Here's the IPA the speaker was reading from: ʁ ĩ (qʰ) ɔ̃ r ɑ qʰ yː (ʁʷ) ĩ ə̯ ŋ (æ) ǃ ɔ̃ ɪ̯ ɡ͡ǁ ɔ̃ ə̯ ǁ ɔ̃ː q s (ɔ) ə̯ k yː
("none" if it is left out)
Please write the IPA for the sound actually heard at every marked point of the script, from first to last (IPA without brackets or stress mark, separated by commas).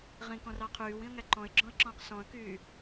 k, w, æ, ɔ̃